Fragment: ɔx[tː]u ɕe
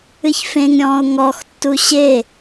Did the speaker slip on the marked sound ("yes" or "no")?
no